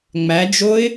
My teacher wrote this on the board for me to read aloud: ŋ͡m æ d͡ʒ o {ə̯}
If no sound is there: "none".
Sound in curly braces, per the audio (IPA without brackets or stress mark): ɪ̯